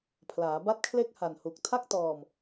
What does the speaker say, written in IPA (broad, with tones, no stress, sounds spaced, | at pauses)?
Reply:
pʰ l aː˩˦ b a˥˩ t̚ kʰ l e˥˩ k̚ h a˨˩ n h u˨˩ k̚ tʰ a˥˩ k̚ t ɔː˧ m